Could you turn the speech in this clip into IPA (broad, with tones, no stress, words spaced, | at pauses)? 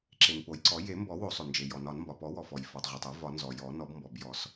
ǁe˩npo˩jǀɔ˨˩˦ je˨˩˦mbɔ˨˩˦ wo˨˩˦sˤo˩nd͡ʒe˩ jɔ˩nɒ˨˩˦n mbɒ˩pɔ˨˩˦wɔ˩fɔ˩j fɔ˩tˤʁʷe˩tˤo˨˩˦ vɒ˨˩˦nzɔ˩ jɔ˨˩˦ nɔ˨˩˦bmbɔ˩bjɔ˨˩˦s